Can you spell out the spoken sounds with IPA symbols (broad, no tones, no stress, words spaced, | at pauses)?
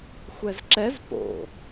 xʷɛzǁɛz po̰